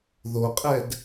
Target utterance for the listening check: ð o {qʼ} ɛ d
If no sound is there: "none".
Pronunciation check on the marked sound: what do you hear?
qʼ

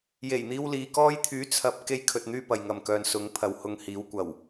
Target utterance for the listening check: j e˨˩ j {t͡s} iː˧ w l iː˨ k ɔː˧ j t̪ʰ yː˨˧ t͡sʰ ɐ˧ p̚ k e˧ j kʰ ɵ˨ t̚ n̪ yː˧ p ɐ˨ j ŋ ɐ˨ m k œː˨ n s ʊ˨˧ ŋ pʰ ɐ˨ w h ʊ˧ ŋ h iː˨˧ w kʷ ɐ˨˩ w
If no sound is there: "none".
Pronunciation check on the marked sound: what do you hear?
n̪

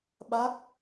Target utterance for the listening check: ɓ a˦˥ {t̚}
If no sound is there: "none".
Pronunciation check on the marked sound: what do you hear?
k̚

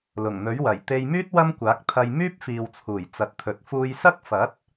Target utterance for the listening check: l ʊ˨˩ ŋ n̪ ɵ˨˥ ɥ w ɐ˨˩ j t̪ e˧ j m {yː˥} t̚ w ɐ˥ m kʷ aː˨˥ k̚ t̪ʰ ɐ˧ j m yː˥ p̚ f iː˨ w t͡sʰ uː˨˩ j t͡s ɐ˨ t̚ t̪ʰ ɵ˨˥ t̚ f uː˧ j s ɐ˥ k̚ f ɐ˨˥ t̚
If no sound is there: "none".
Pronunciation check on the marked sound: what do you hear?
yː˥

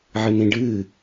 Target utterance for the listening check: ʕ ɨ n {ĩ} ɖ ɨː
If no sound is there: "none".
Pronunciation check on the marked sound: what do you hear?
ĩ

